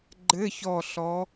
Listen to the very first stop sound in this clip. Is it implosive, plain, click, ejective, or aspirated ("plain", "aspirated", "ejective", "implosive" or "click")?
click